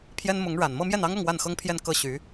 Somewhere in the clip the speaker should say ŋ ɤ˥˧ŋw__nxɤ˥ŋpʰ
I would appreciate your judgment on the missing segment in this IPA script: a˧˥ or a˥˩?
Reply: a˥˩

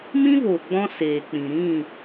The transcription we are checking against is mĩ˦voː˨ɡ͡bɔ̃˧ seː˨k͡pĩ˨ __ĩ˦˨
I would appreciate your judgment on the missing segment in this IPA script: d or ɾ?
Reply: ɾ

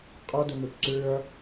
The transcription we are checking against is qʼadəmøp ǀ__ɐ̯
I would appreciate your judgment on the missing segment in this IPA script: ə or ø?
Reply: ø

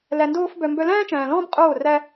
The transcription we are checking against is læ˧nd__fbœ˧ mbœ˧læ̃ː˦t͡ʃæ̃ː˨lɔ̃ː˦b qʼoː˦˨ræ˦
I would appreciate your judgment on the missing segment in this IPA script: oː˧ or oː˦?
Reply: oː˦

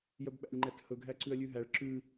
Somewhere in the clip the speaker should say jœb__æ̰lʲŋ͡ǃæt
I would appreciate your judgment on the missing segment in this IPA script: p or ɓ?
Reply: ɓ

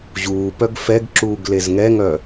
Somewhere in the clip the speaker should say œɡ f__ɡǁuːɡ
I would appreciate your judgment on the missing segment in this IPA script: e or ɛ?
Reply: ɛ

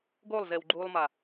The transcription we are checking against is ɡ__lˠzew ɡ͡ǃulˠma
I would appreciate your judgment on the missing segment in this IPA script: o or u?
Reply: o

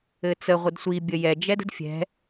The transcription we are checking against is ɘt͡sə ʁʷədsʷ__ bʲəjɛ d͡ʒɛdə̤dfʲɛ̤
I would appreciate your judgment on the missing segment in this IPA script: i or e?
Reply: i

